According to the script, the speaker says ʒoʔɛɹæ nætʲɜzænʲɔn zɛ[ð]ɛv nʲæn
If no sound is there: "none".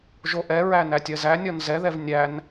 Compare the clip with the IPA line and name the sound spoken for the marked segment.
ð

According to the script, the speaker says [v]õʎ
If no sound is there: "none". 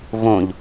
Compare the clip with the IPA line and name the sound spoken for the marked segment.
v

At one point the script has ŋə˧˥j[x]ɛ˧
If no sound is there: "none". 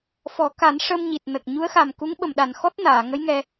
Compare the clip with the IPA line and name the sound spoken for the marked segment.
ŋ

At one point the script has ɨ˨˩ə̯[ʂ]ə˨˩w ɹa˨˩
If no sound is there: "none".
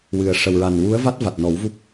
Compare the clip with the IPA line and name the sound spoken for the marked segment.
ʂ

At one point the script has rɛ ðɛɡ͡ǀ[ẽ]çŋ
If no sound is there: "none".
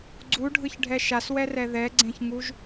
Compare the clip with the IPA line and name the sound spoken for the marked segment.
ẽ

